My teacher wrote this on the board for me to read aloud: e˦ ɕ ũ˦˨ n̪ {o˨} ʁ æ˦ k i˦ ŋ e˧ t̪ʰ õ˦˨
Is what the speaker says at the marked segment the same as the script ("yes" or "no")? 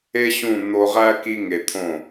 no